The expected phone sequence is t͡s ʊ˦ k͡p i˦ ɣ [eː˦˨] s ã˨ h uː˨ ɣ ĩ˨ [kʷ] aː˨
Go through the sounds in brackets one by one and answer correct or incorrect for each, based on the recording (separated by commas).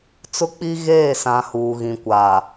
correct, correct